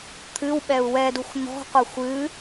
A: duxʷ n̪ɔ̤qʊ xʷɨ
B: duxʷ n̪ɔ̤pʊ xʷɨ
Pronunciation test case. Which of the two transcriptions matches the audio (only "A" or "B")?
A